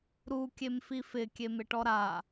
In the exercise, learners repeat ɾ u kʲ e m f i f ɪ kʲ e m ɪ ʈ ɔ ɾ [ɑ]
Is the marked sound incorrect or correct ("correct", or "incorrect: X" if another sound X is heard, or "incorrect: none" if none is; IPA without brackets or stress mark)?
incorrect: a